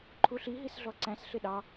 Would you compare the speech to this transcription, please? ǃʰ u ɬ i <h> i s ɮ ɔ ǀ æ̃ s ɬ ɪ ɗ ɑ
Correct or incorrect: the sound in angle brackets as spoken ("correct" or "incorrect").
incorrect